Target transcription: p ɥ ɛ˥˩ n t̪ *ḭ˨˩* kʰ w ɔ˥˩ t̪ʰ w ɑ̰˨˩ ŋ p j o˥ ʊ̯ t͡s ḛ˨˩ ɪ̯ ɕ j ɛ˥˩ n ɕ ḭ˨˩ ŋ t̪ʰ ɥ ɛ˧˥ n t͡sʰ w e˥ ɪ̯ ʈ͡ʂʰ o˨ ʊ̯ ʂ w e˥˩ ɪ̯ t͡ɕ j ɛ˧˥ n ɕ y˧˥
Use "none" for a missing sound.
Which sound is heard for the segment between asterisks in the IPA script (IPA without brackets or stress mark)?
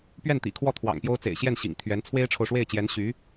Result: ḭ˨˩